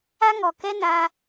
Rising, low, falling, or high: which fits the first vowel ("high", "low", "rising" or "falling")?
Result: high